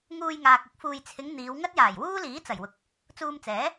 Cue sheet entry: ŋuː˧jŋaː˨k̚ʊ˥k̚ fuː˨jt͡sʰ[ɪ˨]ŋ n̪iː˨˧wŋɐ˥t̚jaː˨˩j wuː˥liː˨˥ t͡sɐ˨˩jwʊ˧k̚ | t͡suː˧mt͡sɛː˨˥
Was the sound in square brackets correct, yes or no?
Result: no